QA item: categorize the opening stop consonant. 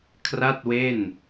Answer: aspirated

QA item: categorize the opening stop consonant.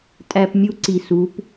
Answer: ejective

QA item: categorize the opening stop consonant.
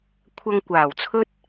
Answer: aspirated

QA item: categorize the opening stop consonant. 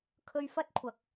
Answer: aspirated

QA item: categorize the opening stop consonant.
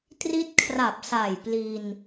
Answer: plain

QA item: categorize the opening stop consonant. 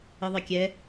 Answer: plain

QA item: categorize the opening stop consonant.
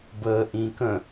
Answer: plain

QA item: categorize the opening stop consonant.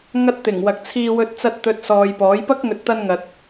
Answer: plain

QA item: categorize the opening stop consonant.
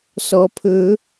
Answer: aspirated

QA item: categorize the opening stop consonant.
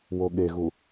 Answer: implosive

